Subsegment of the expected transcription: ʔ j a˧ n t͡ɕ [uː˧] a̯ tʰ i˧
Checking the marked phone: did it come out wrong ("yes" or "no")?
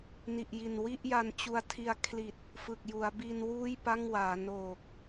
yes